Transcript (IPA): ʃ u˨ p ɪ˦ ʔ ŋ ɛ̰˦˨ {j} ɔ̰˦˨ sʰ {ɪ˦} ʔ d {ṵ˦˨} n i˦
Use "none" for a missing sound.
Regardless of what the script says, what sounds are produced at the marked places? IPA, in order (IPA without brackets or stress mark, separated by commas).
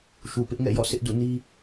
j, ɪ˦, ṵ˦˨